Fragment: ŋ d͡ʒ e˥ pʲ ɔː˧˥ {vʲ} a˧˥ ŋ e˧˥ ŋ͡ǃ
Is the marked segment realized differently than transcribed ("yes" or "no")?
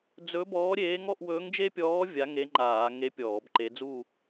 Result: no